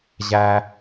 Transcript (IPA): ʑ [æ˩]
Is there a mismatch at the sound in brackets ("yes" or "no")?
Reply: no